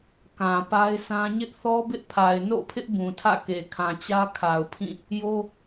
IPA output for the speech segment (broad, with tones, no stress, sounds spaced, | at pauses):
k ã˨ p a˦ ɪ̯ sʰ ã˦ ɲ ɪ˦ ʔ θ ɔ˦ b ɪ˦ ʔ pʰ a˨ ɪ̯ n o̰˦˨ pʰ ɪ˦ ʔ b ũ˨ tʰ ä̰˦˨ k e˨ kʰ ã˨ t͡ɕ ä˦ kʰ a˨ ʊ̯ pʰ ĩ˦˨ | j o˦